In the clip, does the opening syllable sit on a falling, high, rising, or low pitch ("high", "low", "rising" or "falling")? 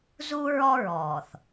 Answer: high